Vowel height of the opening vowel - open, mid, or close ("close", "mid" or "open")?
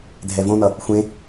mid